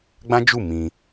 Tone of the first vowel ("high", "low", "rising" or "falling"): high